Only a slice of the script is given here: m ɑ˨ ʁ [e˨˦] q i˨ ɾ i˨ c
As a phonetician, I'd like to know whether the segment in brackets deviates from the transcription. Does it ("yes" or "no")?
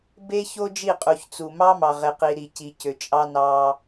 yes